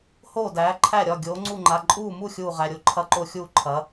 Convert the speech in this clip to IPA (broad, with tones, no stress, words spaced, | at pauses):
hoː˥˩dæː˩˥ǃʰæ˥˩ɾʲɒ˩˧˩ ɡʲoː˩˥ŋ͡ǀu˥˩ŋ͡ǃa˩˧˩ ǃʼuː˥˩mu˥˩ xʲuː˥˩ʁæ˩˧˩ɾʲo˥˩ ǃʰɐ˥˩ǃo˥˩xʲuː˥˩ ǃʰɐ˩˥